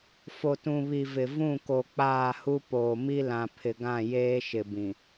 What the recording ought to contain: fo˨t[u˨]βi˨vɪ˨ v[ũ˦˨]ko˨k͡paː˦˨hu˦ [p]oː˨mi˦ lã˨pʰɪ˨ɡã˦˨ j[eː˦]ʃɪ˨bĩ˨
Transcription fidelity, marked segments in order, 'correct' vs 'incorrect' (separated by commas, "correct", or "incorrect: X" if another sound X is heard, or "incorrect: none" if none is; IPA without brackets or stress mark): incorrect: ũ˨, correct, correct, correct